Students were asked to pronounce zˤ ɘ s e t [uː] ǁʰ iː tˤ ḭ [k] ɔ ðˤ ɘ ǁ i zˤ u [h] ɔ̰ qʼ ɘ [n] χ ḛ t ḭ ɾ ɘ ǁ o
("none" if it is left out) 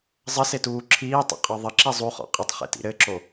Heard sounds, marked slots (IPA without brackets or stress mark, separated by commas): uː, qʼ, χ, tˤ